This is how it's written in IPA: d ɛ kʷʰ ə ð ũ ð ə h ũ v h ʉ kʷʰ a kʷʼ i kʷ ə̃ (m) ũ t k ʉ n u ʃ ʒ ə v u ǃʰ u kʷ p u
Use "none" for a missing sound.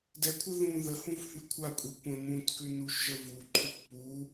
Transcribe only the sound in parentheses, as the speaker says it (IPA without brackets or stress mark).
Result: m